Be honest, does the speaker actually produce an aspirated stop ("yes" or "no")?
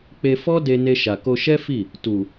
no